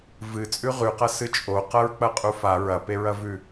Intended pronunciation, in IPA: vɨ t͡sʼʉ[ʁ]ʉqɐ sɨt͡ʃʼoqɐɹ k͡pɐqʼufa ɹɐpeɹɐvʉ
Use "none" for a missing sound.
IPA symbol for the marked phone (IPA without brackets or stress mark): ʁ